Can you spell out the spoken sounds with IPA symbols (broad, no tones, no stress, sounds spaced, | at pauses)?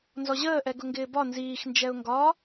n z ɔ ʑ əː ʔ ɛ ɡ ʊ ŋ ɡ ɪː b ɒ n z iː x n d͡ʒ ɛ ʊ̯ ŋ ɡ ɒ